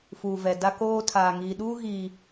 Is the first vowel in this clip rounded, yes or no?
yes